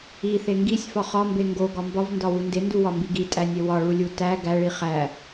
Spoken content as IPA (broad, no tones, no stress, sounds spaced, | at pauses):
i θ e ŋ ɡ i sʲ f ɒ χ ɒ m b e ŋ ɡ o ɡ ɒ m b ɒ v n d ɒ w u n d e n d u w ɒ m b i ɡ i tʼ æ nʲ e w ɒ ɭ u lʲ u t æ ɡ æ ɭ i χ æ